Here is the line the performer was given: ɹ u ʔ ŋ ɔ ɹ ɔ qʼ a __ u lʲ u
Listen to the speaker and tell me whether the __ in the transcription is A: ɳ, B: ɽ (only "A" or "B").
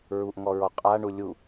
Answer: A